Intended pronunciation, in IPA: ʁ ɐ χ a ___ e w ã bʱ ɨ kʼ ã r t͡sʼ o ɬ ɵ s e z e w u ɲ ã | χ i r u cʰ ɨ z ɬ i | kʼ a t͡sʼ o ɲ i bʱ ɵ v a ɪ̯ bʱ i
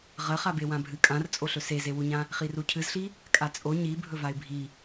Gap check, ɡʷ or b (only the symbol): b